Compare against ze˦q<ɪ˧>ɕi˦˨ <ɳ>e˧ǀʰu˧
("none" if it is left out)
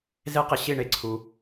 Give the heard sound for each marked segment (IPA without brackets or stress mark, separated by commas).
ɪ˧, ɳ